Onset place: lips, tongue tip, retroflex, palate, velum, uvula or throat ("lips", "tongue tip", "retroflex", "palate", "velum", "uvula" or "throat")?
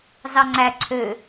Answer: tongue tip